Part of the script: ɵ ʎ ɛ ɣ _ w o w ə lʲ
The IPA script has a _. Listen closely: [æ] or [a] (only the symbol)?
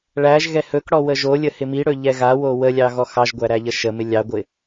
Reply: a